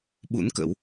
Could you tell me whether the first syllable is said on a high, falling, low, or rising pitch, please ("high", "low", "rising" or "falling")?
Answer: rising